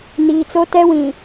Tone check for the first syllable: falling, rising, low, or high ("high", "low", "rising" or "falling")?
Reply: low